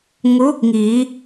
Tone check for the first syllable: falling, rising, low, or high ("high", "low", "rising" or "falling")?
rising